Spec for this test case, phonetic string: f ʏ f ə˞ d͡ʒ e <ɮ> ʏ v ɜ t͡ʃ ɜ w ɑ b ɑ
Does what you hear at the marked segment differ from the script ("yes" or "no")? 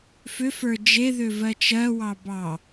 yes